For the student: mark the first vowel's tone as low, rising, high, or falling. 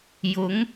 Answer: rising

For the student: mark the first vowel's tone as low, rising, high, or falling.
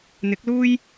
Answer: rising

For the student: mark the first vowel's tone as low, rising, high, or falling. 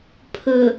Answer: low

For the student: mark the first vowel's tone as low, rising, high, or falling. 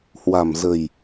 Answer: low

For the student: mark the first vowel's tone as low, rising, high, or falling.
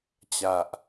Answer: low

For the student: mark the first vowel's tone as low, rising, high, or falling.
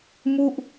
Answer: falling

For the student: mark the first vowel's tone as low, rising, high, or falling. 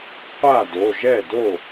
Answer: falling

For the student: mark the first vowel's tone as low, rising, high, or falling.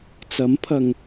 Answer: rising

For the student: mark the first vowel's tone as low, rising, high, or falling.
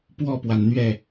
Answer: falling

